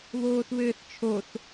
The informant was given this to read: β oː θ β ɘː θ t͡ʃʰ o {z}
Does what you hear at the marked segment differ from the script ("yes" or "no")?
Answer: yes